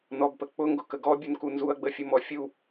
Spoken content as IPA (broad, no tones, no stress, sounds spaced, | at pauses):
n ɔ b p ə k͡p ʊ ŋ ɡ ʊ k ə ɡ ɔ bʲ u n k u n z u ɐ̯ ɡ͡b ə fʲ ʊ m ɔ fʲ u